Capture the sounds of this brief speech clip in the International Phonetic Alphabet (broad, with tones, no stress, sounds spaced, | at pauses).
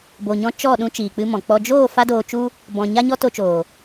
b o˨ ɲ ɔ̃˧ t͡ʃ ɔ˦˨ ɗ ũ˧ t͡ʃ iː˨ k͡p ɨ˧ m ɔ̃˨ k͡p ɔ˧ d͡ʒ oː˦˨ f a˧ d oː˨ t͡ʃ u˧ | b ɔ̃˨ ɲ a˧ ɲ ɔ˧ t o˧ t͡ʃ oː˨